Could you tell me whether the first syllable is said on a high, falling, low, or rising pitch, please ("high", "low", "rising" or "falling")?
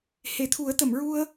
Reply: low